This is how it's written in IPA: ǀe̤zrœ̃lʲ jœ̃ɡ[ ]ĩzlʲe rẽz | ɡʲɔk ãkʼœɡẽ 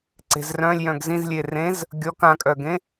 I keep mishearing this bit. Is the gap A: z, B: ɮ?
A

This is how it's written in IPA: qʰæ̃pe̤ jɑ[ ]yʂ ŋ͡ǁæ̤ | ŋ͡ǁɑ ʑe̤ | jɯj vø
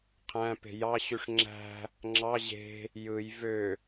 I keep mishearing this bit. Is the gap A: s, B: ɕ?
B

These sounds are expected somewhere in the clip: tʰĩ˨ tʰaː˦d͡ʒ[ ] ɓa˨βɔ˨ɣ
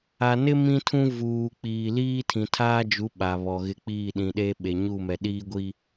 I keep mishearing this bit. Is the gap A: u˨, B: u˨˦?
B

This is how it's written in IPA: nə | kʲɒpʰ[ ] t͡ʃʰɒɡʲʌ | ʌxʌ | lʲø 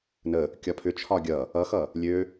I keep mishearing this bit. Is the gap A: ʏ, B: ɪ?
A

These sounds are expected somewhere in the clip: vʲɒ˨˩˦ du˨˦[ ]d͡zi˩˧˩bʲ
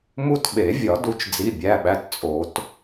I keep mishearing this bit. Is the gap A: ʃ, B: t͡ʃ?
B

